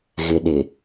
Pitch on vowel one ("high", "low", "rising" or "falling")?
low